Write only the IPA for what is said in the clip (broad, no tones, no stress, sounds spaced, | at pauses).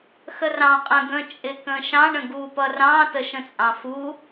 x ə r ɑ̃ qʼ ə̃ ɡ ə̃ t͡ʃʼ ɪ k ə̃ ʃ ɑ̃ ɳ ə̃ ɡ u p ʌ r ɑ̃ t ə ʃ ə̃ t͡sʼ ɑ̃ f u